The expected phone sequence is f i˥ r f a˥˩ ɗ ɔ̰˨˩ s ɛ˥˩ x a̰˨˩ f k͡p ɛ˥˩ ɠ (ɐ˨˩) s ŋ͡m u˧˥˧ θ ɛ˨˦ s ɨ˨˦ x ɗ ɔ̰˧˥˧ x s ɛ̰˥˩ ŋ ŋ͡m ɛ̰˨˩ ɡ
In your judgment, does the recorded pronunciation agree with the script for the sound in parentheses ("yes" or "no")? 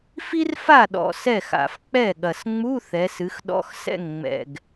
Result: yes